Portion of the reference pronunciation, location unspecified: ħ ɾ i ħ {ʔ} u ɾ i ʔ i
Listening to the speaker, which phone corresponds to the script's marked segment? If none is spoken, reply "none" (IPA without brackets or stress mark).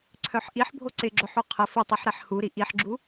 h